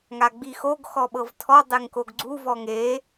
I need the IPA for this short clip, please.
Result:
ŋ a ɡ͡b i x o ɡ x ɔ ɓ ɤ v tʰ ɔ dˤ e ŋ k o ɡ ɡ͡ǀ u v ɔ ŋ e

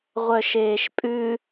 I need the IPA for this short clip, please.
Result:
ʁʷ œ ʃ eː ʃ pʼ ʉ

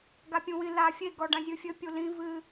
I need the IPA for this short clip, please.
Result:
ɡ a pʲ ũ w ĩ l a fʲ e ɡ ɔ ɖ ã zʲ ɨ fʲ ɘ pʲ u l ĩ v ɨ

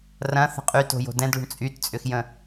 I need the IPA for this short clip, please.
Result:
r ɐ̃ θ ə̤ qʼ y t o̤ j o̤ d ɛ̃ d ɭ o̤ ɳ t͡sʼ y t t͡sʼ ʏ x j ə̃

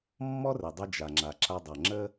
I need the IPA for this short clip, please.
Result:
mː ɔ˥ r ɘ˩ dˤ ɘ˧ d͡ʒ a˩ ŋ͡ǁ a˩ ǁ a˧ dˤ ʌ˩ ŋ͡ǁ ə˥

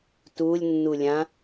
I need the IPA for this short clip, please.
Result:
t u lʲ nː u lʲ ã

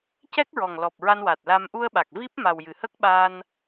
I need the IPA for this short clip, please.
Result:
c ɛ˦˥ k̚ ɹ ɔ˨˩ ŋ l ɔ˨˩ p̚ ɹ a˧ n w a˨˩ t̚ l a˧ m ʔ u˧ ə̯ ɓ a˨˩ k̚ v i˦˥ p̚ m a˨˩ w j ɨ˨˩ h ə˦˥ k̚ ɓ a˧ n

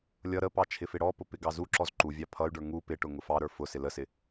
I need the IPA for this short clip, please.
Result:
lʲ ʌ ɾ ə p ɑ t͡ʃʰ ɪ f ɪ ɽ ɔ p ʊ p ɪ ɡ ɑ z u ǁ ɔ z ǃ u vʲ ɑ pʰ ʌ y̯ ɖ ə˞ ŋ u p ɪ ʈ ʊ ŋ ʊ f ɑ ɾ ə˞ f ʊ s ɪ l ə s ɪ

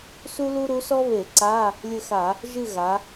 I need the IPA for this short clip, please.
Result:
s u˥ l u˥ ɾ u˧˥ s ɔ˥ β e˧˩˧ ǀ a˧˥˧ | lʲ ɘ˦˨ x a˧˩˧ | ʒ ɨ˦˨ ɣ a˩˧

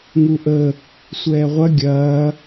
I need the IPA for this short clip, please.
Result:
ŋ u ʔ ə | sʷ ɛː ʁʷ ɐ ɡʲ ɐː

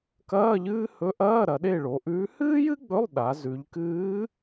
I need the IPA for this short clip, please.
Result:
k ɐː˧˥˧ ʎ ɨː˥ h ɵ˧˥ ʔ ɐː˧˥˧ ɾ ɐ˩˧ ɗ e˦˨ ɭ o˩˧ ʔ ʉː˧˥ h ɨː˥ j ɨ˥ ɡ͡b ɵ˧˥˧ lˠ ɗ a˩˧ z ʉ˩˧ ʎ k ɨː˧˥

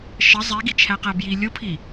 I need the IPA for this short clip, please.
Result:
ʃ ə zˤ e ɡ i t͡ʃʰ æ q æ b j i lʲ o pʰ i

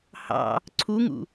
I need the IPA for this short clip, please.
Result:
h ɑ̰ | ǀʰ u ŋ ṵ

